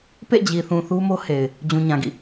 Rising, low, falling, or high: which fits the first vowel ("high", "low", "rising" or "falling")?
falling